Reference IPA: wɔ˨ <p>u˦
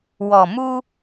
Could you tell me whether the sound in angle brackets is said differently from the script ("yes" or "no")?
yes